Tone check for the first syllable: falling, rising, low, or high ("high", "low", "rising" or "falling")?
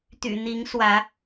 low